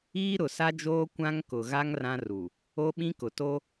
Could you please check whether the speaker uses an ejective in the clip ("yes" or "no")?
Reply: no